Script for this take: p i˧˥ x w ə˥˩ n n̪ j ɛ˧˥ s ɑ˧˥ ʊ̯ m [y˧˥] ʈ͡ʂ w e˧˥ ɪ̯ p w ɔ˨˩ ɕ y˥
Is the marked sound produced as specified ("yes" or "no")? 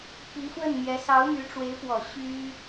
yes